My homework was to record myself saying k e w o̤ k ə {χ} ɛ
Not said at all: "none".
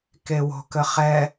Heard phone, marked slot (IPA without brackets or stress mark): χ